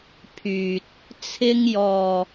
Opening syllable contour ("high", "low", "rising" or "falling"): low